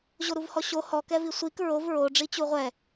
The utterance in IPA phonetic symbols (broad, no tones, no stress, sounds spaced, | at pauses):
ʑ o ɾ u v h ɔ ɕ o h ɔ k ɛ v i sʷ i k ɹ o v ɹ o ɖ͡ʐ i t͡ɕ u ʁʷ ɛ